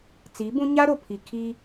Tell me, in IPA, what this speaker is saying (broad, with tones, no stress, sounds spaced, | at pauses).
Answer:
t͡s i˨˦ b ũ˦ ɲ a˦ ɾ o˨ pʰ i˨ kʰ i˦